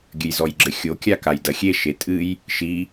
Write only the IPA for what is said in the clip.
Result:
ɡʲ ɘ j z ɔ j ɡ͡ǁ ɘ xʲ o kʲ a k a j d ɐ xʲ e ʃ e tʼ ɨ j | ʃ i

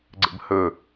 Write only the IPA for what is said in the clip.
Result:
ɡ͡ǀ ə̰ b h ɵ

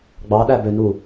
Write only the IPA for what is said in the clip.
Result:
ɡ͡b ɑ ɗ æ b ø n u

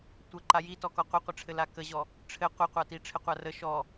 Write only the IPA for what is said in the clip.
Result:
tʷ ə ǃ a j i t ɔ k ɔ qʷ ɘ qʷ ɘ ʈ͡ʂʰ ɘ l a k ə ʑ ɔ | ʈ͡ʂʰ ɘ qʷ ɘ qʷ a t i ʈ͡ʂʰ ɘ qʷ a r ə ʃ ɔ

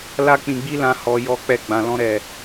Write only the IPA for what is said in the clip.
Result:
l a˦ k͡p ĩ˧ ɡ͡b i˦ l ã˧ h ɔ˧ j ɔ˦ k͡p ɛ˦˨ ɡ͡b ã˨ l ɔ̃˧ ɾ ɛ˨

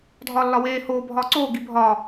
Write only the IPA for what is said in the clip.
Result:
dʱ ɒː lː ɒ w eː h oː bʱ ɒː ǀ oː ɡ i bʱ ɒː

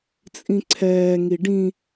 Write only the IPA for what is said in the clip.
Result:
t͡sʼ ĩ ǀʰ ɛː ŋ i ɖ ĩ

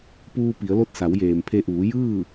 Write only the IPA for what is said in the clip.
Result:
p uː˧ p i˩˧ ə̯ l o˥˨ t̚ s a˩˧ w j eː˩ m pʰ e˧ ʔ uː˩˧ j ɯː˥˨

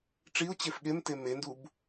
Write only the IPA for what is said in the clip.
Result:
ʈ͡ʂ i ʊ̯ t͡ɕ e f ɠ e m t e m e n d u b

